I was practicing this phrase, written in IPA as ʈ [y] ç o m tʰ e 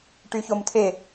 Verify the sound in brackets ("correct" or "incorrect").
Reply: correct